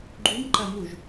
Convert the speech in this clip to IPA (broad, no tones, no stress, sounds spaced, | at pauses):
ɡ͡ǃ u m ǃ ɐ m u ʒ